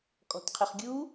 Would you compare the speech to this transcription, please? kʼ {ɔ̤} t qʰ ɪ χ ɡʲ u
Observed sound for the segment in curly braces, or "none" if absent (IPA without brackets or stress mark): ɔ̤